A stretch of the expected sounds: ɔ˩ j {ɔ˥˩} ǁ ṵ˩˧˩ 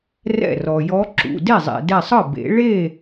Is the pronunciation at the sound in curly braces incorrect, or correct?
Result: incorrect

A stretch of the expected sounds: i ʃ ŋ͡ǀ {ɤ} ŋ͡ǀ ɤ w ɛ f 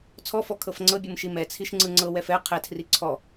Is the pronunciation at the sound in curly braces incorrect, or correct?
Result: incorrect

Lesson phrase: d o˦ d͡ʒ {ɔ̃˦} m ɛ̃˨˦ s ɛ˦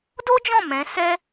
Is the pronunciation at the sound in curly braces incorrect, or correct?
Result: incorrect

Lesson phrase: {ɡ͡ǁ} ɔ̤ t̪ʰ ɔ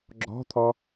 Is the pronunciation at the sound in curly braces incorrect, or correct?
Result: correct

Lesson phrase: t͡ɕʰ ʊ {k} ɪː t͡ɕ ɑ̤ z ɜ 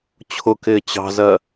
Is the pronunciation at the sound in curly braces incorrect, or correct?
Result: correct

